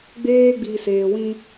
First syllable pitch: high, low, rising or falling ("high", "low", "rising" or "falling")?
high